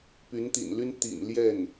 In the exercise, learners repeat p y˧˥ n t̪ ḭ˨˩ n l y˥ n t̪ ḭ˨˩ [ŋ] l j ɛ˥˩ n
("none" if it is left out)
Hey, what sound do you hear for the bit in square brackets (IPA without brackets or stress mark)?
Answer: n